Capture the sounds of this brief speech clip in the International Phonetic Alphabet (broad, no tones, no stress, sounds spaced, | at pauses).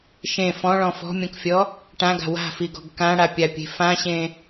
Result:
ʃ ẽ f ɔ̃ ɭ ɔ̃ f ɔ̤ mʲ ɔ̃ k fʲ ɔ | ʈ ã ɡ a̤ w a̤ f i ɡ ɔ̤ ɡ k ã ɽ a pʲ a pʲ e̤ f ã ɕ ẽ